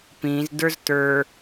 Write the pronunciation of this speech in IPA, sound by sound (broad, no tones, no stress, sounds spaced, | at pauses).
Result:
p ĩ z d ə˞ z t ə˞